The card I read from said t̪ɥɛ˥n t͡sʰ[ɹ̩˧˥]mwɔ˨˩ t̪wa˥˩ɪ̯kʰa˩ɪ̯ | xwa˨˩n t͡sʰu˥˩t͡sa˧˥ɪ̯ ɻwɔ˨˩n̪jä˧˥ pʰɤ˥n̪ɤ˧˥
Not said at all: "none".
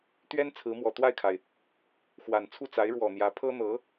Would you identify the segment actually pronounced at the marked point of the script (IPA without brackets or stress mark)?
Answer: ɹ̩˧˥